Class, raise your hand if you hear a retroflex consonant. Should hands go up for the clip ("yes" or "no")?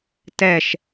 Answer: no